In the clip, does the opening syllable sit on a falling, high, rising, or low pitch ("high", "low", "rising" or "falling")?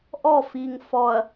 falling